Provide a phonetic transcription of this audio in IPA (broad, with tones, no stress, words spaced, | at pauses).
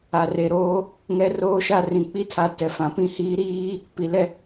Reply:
a˨re˨ ɾoː˦ | ŋɛ˦roː˦ʃa˦ rĩ˨k͡pi˦tʰa˨ tɛ˨fã˨pĩ˦hiː˦ ɾiː˦ | pi˨lɛ˦